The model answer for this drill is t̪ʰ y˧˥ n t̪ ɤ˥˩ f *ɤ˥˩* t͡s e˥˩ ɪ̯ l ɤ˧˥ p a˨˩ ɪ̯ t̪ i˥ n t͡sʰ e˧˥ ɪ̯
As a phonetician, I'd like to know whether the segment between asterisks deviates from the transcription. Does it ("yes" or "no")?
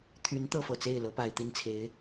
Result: yes